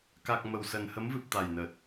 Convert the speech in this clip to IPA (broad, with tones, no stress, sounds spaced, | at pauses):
k a˨˩ k̚ m ə˨˩ w s ə˨˩ n h ə˨˦ m v ɨ˨˩ p̚ t̪ a˨˩ j n ə˨˩ t̚